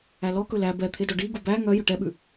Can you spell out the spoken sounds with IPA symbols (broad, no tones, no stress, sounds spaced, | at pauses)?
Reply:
æ l ɔ k ɵ l æ b ɛ t̪ʰ e d ɔ ɖ i ɡ u b æ ŋ œ j ɵ ʈ ɛ ɓ ʉ